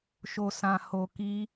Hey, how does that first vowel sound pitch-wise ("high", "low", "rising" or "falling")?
low